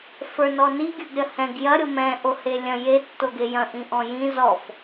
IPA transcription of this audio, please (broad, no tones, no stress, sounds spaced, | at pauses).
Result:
f ə˞ n ɔ n i ɡʲ ə˞ ɡ ɾʲ ɐ h ɛ̃ ɡ j ɐ ɾʲ o m ɛ̃ ʔ o h e lʲ ɐ̃ j e tː o ɡ e j ɐ̃ ʔ ĩ ʔ ɔ̃ j ĩ z ɔ f